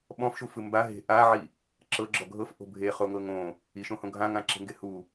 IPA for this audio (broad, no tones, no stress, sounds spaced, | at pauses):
ɓ ɔ̃ f ʃ u f ɯ m b a ɦ e̤ ʔ a ʕ i | ǁ ɤ ɡ͡ǁ ɔ ɡʱ ɤ f ʔ o̤ bʱ e χ o ŋ ɤ ŋ õ | i ʃ õ h õ ɡʱ ã ŋ ã ǁ e̤ ŋ ɡ e h u